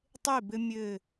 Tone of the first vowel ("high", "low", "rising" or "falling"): falling